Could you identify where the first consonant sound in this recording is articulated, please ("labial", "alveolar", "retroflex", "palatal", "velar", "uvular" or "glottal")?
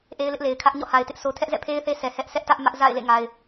glottal